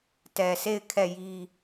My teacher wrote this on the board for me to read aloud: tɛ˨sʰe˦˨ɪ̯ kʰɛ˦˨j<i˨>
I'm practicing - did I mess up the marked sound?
yes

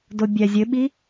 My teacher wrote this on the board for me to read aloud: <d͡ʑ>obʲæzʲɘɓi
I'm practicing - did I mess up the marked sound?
yes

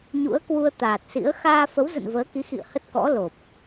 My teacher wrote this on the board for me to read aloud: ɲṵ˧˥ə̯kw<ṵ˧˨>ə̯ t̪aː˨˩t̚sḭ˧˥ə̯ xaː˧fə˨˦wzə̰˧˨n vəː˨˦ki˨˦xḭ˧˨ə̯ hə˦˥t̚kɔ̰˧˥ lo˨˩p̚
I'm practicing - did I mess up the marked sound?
yes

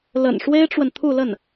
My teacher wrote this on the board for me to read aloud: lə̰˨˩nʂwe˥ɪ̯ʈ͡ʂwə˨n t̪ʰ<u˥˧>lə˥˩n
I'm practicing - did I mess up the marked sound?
no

